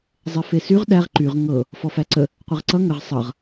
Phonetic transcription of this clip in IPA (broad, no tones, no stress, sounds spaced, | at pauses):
zˤ ɛ f e s y ʁ ɗ æ ʁ ǃ y ʁ ŋ ɤ | f ɔ f æ ǀ ə | qʷ e ʁ ǀ ʌ ŋ ə ʁ sˤ ʌ ʁ